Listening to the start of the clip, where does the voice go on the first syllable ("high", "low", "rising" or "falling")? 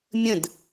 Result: falling